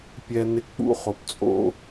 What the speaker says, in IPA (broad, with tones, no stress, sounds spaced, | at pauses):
pʲ ɛ˦ n ɪ˦ k͡p ṵ˥ χ o˨ p t͡sʼ o̰˥